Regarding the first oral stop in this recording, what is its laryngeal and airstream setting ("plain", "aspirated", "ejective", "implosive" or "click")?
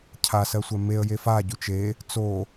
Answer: aspirated